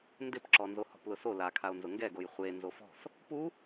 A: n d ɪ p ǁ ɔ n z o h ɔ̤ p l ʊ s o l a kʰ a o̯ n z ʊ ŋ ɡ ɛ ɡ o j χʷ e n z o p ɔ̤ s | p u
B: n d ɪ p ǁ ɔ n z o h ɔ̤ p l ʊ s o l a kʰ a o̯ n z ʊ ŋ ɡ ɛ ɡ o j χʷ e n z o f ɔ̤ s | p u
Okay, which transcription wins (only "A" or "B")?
B